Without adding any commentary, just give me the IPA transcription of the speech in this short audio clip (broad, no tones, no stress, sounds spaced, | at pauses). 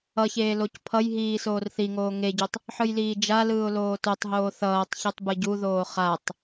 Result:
ʌ ç eː l o c pʰ ʌ j ɦ iː s oː r θ i ŋ oː ŋ e ɟ o tˤ | ħ ɯ j l iː d͡ʒ a l ɯː ʊ̯ l oː t o tˤ ɦ oː θ ʌː tˤ ç ɯ tˤ b ɯ ɟ u ð oː χ a tˤ